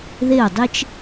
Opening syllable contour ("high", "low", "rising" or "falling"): falling